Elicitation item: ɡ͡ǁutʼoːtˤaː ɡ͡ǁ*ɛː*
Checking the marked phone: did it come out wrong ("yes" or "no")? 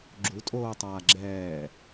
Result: no